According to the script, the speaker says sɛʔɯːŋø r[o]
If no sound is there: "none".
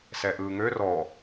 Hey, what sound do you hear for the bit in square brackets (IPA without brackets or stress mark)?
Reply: ɔ